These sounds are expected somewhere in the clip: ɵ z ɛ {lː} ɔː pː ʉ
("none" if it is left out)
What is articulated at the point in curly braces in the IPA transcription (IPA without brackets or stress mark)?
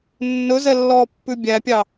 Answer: lː